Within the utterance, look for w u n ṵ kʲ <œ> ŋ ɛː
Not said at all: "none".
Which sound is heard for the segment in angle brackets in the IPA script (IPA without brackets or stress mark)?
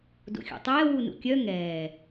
œ